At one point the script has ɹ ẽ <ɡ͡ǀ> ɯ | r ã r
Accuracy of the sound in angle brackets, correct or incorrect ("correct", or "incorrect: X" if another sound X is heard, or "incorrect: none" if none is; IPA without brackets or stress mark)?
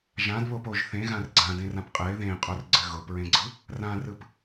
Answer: correct